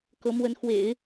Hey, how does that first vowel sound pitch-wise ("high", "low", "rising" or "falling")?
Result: rising